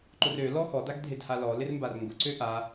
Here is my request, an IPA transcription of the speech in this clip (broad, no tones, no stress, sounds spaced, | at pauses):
ǃ ʊ r ø l ɔ x ɔ d a ɡ dʱ e d h a l ɔ l ɪ r m b a r ŋ ɡ ʊ ǀ ø ʔ a